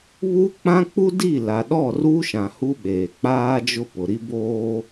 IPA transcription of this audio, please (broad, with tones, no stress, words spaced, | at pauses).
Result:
βu˦k͡pã˦k͡pu˦ di˦˨la˨ɗɔ˦˨ru˦ ʃã˨hu˦ ɓeː˨k͡paː˦d͡ʒʊ˦ pʊ˨ɾi˦boː˦